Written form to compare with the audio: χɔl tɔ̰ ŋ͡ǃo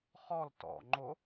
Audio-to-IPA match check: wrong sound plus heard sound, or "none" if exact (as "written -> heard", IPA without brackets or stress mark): none